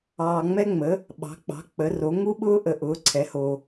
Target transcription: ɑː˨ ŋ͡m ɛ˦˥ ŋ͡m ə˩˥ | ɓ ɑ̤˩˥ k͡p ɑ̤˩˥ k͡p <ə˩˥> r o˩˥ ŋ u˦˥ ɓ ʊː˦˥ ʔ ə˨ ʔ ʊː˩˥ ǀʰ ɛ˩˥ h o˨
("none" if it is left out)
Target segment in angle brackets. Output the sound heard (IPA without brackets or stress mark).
ə˩˥